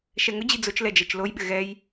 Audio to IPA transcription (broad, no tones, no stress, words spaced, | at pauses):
ʃɛŋʊd͡ʑi d͡zʊt͡ʃlɛ d͡ʒɛt͡ʃlojɓɪ ɣɛj